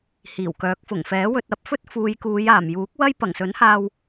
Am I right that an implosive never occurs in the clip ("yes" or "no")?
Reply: yes